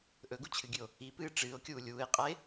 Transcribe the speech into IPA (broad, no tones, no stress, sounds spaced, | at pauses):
ʔ ɵ ɡ u t͡ɕʰ ɨ ɡʲ ʉ o̯ | i p ɨː ʈ͡ʂ ɨː o̯ kʲ uː lʲ uː e̯ qʼ a e̯